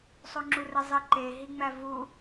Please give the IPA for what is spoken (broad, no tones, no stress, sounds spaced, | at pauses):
sˤ o ŋ͡ǁ u r e zˤ i ǃ e ɦ i ŋ͡m æ v u